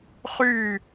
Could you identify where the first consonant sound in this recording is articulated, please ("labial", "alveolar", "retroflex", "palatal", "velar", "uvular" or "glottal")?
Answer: uvular